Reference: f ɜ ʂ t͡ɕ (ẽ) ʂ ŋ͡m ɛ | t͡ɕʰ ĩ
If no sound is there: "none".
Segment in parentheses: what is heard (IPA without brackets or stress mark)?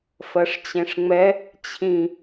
ẽ